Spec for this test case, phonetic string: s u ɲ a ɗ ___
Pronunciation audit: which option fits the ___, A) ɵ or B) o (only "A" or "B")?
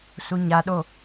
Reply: B